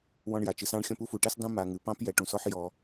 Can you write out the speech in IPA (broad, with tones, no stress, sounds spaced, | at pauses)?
w ɔ̃˦ ɳ j a˩ t͡ʃ ɨ˨ s ɑ̃˦ ɳ xʲ ɔ̃˦ p u˥ f u˩ ʈ ɛ˥ s dˤ ũ˦ m a˨ ŋ ɨ˩ p ɑ̃˥ p j ɛ˨ ʈ ũ˩ s ɔ˦ ħ j ɔ˩